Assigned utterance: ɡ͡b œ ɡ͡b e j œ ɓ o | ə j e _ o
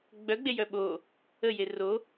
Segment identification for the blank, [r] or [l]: r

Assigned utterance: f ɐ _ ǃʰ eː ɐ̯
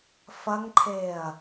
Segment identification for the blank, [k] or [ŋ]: ŋ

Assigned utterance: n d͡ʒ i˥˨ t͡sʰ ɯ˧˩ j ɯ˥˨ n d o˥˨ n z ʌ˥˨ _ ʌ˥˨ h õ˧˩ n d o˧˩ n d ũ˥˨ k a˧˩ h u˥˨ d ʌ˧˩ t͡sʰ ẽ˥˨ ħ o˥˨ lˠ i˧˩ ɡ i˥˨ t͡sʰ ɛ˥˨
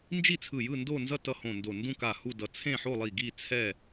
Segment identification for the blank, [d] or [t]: t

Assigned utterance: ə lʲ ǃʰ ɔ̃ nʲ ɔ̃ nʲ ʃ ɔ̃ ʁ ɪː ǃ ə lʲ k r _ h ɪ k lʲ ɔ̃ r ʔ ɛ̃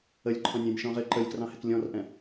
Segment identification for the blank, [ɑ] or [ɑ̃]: ɑ̃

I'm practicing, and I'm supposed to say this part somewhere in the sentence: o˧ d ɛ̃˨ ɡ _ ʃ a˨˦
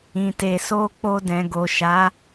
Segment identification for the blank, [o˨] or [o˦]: o˨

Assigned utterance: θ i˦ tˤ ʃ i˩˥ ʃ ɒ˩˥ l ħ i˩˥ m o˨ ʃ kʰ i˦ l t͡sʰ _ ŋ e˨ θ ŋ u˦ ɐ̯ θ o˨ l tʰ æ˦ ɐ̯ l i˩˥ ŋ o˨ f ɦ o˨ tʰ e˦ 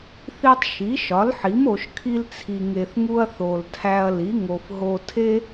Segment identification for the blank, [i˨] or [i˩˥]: i˨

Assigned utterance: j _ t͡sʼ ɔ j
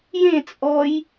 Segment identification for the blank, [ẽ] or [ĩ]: ẽ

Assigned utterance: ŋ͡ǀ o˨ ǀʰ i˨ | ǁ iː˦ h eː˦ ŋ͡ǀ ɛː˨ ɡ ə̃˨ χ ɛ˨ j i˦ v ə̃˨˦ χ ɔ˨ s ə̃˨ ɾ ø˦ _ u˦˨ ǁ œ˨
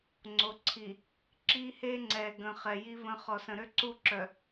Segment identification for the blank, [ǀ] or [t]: ǀ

